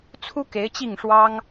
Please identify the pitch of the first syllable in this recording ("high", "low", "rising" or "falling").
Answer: high